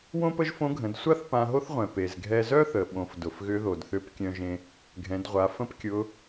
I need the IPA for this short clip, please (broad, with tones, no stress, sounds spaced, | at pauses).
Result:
w õ˥ p ə˥ ʒ f õ˧˥ ɡʱ ə̃˩˧ d sʷ a˥ θ p ã˧ ɦ o˥ θ ʁʷ ɛ̃˩ p e˩ z ɡʱ ɛ˧ z œ˥ θ ə˩ ɓ õ˩ f d ʊ˩ f ɣ ʏ˧˥ ð o˩ d θ ʏ˧˥ p kʲ œ̃˧ ʒ ẽ˧ | ɡʱ ɛ̃˩˧ d ʁʷ a˩˧ f ə̃˥ p kʲ ʊ˧˥